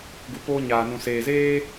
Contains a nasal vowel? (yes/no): yes